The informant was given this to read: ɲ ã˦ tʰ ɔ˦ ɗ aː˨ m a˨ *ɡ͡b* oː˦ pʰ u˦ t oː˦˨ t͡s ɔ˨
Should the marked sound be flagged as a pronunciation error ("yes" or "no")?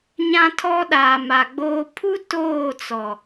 no